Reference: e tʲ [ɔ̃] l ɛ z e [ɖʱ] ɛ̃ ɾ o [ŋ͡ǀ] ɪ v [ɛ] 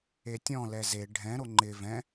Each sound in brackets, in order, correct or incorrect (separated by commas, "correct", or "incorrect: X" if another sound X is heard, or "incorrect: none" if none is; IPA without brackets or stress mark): correct, correct, incorrect: ŋ͡ǃ, incorrect: ɛ̃